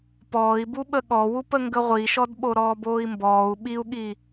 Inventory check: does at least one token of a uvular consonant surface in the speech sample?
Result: yes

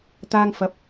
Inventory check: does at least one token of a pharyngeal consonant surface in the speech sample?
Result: no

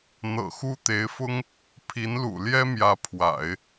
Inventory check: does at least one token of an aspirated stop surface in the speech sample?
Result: yes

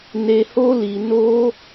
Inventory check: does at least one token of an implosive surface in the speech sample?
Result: no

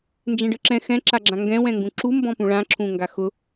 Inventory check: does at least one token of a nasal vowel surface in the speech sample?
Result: yes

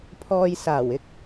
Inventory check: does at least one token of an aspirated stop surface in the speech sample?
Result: yes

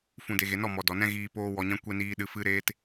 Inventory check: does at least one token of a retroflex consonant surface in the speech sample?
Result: no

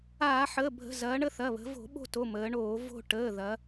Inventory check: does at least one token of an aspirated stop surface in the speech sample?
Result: no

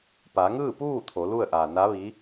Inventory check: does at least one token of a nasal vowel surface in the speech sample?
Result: no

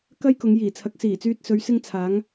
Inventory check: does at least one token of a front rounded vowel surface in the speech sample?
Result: yes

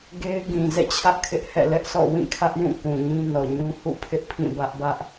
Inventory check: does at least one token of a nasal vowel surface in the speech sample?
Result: yes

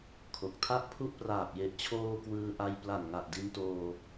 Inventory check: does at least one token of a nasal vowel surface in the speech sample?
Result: no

